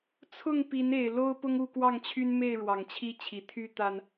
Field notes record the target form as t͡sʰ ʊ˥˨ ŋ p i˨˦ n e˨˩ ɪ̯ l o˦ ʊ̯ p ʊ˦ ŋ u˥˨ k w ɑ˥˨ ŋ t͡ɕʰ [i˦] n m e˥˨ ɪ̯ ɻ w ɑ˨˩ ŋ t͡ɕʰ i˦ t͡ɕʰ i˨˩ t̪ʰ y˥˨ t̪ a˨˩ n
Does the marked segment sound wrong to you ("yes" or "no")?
yes